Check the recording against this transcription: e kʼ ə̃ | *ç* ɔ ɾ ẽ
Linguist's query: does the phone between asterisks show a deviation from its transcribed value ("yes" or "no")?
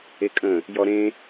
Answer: yes